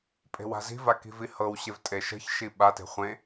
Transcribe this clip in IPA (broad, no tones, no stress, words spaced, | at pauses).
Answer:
pʼe̤wa̤zi̤va ki̤vihɤwɕev tʼeʃə̤çʃi ɓate̤ χʷẽ